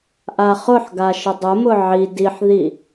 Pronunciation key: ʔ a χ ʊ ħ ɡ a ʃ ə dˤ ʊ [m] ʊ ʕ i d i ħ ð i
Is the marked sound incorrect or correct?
correct